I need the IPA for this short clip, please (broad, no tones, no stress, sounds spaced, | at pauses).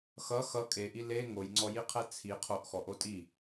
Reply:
x ʌ x ʌ kʼ e ʔ i l e ŋ o j ŋ͡ǀ ɔ j i qʰ ɛ t͡sʰ i qʰ o ʔ x ɔ ʔ o tʼ i